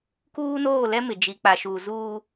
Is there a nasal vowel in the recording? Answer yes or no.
no